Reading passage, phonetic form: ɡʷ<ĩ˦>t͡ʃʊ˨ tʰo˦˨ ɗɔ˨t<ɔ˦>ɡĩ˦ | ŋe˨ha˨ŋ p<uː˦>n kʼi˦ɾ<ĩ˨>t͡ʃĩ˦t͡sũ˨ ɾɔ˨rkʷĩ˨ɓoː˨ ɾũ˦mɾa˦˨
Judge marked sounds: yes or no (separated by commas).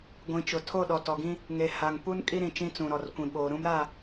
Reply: no, no, no, yes